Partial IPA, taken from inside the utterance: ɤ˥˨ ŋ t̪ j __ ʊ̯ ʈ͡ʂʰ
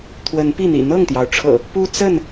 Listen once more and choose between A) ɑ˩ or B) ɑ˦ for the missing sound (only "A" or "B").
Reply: A